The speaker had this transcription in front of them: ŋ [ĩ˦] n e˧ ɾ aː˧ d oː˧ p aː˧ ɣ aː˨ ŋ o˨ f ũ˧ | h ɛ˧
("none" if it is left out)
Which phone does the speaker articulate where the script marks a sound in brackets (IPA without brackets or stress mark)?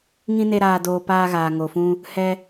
ĩ˦